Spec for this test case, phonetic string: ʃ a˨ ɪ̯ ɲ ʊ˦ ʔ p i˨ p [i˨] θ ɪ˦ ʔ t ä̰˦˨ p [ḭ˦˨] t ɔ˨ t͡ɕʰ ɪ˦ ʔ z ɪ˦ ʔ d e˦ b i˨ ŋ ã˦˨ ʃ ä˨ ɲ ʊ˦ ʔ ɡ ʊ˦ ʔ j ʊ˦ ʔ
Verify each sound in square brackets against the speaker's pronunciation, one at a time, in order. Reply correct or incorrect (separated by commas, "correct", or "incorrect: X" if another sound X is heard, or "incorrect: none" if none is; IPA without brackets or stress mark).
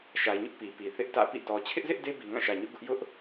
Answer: correct, correct